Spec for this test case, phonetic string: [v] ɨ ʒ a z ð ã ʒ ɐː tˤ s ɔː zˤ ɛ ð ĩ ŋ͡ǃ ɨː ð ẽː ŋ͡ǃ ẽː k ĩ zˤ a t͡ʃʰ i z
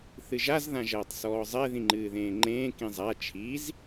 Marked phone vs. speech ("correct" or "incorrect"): incorrect